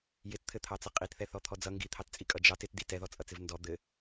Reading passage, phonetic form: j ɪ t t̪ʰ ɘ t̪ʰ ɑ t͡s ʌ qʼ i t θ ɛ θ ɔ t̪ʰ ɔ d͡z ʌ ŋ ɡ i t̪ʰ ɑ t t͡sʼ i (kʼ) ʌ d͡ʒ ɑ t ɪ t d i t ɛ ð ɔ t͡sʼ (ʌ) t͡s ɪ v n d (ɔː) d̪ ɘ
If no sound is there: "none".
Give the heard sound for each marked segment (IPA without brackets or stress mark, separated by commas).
kʼ, ʌ, ɔ